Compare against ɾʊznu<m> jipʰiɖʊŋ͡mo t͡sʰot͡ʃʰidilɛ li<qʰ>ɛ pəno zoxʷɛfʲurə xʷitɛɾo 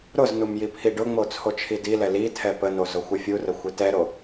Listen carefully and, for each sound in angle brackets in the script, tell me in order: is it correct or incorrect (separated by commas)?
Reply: correct, incorrect